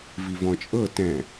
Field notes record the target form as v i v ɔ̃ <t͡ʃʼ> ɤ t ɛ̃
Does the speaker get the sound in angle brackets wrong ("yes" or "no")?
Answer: no